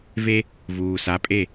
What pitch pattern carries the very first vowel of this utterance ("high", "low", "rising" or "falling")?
high